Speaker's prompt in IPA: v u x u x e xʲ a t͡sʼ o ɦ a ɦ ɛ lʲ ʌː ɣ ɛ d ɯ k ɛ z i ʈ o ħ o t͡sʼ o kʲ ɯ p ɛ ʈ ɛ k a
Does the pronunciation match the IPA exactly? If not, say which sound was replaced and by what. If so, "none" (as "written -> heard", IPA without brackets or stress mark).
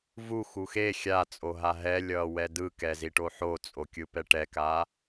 ɣ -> w